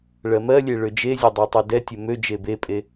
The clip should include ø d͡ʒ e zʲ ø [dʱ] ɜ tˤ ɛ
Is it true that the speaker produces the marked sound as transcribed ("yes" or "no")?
no